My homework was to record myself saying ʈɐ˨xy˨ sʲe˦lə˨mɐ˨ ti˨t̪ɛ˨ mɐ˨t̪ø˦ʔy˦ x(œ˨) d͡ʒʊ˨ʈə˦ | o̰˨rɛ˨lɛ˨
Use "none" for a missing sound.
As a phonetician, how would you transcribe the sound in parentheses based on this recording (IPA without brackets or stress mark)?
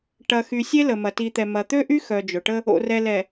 œ˨